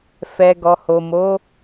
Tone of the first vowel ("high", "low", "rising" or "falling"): low